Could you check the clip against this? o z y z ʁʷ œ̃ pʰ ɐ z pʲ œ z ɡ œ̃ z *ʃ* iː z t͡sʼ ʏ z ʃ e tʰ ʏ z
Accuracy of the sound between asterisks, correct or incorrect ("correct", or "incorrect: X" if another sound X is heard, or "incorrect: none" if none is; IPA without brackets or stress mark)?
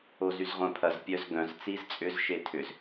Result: incorrect: t͡s